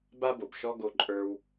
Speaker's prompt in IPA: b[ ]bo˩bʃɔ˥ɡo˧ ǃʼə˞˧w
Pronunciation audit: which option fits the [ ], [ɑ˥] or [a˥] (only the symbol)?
a˥